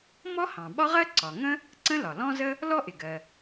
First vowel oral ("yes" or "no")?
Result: yes